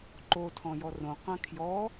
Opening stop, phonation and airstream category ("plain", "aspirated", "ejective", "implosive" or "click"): click